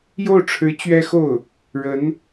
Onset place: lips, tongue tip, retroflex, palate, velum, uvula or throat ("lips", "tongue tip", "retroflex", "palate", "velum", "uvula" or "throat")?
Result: palate